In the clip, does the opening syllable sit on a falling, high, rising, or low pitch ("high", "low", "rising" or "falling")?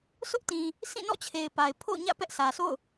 high